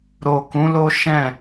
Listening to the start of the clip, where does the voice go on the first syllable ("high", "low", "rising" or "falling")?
low